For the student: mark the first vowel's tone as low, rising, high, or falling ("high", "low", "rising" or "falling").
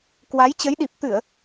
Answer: rising